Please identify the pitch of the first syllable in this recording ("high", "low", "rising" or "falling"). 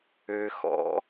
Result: low